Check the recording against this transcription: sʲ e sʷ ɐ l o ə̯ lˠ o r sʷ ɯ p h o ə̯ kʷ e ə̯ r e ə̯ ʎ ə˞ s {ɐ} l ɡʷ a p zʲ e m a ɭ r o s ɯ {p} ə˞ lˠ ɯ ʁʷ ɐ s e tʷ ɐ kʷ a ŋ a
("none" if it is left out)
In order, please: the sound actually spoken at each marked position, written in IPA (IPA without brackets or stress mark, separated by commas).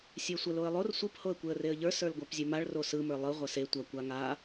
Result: ə˞, m